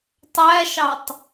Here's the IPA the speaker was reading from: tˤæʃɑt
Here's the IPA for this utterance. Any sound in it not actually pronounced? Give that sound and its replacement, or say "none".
t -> tˤ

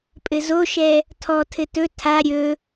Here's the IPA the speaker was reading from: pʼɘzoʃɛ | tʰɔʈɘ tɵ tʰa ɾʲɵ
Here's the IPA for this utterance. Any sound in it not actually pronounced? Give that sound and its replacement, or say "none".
ʈ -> tʰ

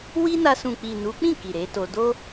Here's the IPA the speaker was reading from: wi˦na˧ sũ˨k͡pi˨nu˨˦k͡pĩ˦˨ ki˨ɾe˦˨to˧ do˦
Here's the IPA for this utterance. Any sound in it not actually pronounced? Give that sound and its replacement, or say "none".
e˦˨ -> e˨˦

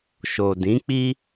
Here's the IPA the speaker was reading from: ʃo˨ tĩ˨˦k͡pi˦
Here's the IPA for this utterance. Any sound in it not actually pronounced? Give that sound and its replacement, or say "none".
t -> d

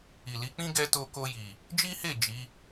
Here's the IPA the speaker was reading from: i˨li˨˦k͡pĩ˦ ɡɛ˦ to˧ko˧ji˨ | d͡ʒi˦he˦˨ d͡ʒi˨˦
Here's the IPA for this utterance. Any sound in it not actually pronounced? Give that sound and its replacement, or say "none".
none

